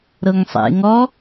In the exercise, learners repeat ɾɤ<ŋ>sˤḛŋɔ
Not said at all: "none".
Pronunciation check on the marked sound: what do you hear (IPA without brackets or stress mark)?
ŋ